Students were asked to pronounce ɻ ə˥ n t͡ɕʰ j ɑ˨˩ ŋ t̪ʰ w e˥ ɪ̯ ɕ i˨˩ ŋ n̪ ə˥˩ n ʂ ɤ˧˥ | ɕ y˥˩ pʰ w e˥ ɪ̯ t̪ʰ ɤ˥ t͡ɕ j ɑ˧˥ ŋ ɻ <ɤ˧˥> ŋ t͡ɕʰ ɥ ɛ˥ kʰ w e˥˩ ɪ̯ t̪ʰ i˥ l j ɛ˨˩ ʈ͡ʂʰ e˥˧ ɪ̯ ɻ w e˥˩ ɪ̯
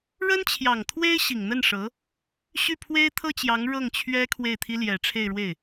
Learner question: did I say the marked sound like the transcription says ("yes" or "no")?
no